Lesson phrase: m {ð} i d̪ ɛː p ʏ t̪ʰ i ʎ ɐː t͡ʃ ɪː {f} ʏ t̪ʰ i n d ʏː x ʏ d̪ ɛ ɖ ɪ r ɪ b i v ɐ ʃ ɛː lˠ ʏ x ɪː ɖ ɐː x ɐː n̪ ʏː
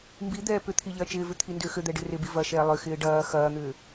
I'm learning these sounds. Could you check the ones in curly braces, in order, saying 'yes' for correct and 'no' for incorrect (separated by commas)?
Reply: no, no